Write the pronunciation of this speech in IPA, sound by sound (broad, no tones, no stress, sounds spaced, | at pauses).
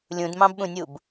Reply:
lʲ ũ d m ɑ̃ b ɓ ũ nʲ u b